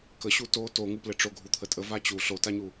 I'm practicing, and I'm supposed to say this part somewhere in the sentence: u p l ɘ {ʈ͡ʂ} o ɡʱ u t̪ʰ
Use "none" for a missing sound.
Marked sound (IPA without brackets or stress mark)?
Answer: ʈ͡ʂ